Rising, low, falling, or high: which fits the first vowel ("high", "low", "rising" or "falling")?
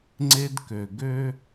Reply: high